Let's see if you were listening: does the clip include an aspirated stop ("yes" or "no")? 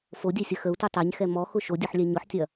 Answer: no